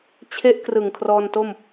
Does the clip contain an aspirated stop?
yes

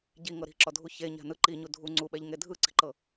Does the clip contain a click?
yes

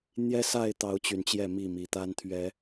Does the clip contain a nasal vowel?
no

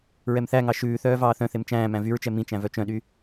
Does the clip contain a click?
no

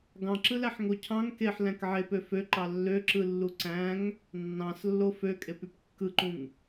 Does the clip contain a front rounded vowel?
yes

